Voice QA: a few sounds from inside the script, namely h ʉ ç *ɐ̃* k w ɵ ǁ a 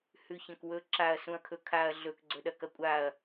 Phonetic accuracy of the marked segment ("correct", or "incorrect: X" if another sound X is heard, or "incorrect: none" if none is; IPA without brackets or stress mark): correct